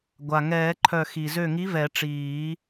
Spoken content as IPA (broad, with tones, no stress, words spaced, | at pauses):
ɡʷa˩ŋɛː˨˩˦ǃʰœ˧˩ xi˩zø˧˩ŋi˨˥ vɛ˨˩˦ʈ͡ʂiː˨˩˦